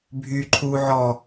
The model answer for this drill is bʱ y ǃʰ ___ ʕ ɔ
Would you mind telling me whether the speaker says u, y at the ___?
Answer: u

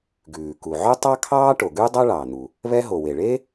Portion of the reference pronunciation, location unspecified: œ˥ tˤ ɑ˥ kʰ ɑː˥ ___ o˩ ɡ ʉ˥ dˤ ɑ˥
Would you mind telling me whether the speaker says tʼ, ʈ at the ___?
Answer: ʈ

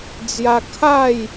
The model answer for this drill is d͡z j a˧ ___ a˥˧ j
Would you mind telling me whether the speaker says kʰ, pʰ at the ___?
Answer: kʰ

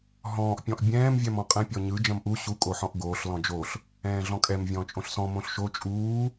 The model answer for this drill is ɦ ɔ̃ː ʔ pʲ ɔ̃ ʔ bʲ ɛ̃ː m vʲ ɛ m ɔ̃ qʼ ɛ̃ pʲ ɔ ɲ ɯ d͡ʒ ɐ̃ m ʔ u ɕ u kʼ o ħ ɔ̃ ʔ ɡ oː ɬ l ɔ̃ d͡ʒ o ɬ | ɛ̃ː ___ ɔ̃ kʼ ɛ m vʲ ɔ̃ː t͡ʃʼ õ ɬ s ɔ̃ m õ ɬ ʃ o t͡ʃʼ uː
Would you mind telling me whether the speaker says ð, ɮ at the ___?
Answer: ɮ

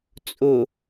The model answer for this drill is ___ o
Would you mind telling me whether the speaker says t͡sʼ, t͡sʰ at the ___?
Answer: t͡sʼ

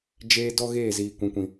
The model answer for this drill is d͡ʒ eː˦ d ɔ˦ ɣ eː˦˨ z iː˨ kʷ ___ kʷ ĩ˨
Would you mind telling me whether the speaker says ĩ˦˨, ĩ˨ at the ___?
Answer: ĩ˨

